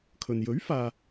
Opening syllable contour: low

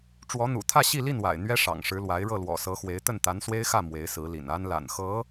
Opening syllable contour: rising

